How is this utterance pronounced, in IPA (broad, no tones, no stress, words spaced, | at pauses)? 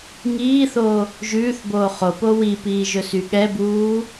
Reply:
ŋiːθo | ʒʉːθboː χopo wipiːʒɵsy ɠɛbuː